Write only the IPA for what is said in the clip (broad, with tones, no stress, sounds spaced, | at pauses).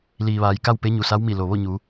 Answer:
l iː˩ ʋ aː˩˧ j k a˥˨ w p e˧˥ ɲ u˩ s a˧˥ w m i˧˩ l o˩ ʋ o˥˨ ɲ u˩˧